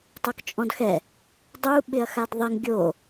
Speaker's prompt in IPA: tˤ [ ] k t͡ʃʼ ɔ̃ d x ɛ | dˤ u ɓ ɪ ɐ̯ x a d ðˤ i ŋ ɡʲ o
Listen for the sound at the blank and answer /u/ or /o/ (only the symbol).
o